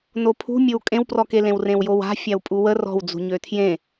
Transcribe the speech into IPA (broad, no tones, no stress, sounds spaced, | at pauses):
n o pʰ ṳ mʲ o w kʼ ẽ w p r ɔ k e l ẽ w r ẽ w j o w a̤ fʲ a w pʼ u w ə r ɔ̤ w d͡z ṳ ɲ ø tʰ j ẽ